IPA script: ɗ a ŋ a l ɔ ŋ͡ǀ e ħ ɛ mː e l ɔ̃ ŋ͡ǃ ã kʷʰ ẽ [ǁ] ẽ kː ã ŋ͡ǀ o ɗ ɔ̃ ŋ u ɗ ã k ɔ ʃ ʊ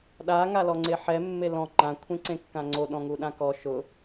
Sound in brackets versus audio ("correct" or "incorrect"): incorrect